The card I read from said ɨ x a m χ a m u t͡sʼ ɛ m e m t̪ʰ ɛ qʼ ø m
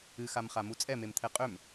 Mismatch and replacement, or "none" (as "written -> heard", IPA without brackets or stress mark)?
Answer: none